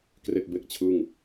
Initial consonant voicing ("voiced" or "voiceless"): voiceless